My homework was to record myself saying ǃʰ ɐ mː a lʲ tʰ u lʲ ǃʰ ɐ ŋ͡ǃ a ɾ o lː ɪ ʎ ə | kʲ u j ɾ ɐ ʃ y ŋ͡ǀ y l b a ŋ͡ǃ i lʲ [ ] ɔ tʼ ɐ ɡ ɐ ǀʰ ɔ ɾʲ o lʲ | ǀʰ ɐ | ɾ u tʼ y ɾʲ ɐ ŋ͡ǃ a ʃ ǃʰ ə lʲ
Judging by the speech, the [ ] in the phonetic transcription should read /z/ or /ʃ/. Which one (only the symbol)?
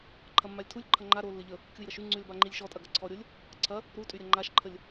ʃ